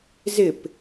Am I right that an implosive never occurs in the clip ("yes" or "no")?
yes